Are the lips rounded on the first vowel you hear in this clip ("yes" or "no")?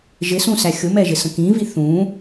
no